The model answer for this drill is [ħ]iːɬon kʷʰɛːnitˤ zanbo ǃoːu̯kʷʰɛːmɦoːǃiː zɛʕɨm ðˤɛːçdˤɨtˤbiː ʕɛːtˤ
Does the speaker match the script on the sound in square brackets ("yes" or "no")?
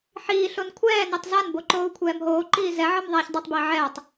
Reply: yes